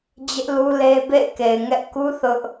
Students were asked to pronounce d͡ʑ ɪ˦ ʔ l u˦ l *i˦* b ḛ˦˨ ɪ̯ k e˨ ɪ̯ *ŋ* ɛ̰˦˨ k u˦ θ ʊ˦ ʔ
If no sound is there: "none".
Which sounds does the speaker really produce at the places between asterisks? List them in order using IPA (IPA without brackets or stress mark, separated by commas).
e˦, ŋ